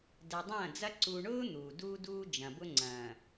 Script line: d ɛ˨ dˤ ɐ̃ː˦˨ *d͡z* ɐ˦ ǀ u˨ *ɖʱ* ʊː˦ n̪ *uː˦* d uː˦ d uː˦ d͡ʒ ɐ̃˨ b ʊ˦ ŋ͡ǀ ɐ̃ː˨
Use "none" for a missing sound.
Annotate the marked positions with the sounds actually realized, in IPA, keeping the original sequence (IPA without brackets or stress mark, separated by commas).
d͡z, ɳ, uː˨